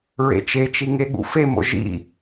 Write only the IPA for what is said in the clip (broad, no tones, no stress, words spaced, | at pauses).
ɹḛt͡ʃet͡ʃi ŋeɠṵfemo̰ ʒḭ